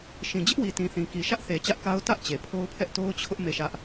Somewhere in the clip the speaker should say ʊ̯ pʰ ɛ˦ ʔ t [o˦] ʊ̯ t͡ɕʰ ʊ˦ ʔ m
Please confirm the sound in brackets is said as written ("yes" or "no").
yes